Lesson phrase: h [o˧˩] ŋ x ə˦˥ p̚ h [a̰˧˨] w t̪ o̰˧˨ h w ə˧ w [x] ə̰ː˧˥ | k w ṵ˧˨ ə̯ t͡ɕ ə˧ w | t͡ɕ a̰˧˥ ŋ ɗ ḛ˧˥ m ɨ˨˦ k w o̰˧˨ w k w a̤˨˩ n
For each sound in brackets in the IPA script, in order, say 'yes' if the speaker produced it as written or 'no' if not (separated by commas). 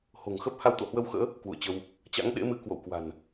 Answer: no, no, yes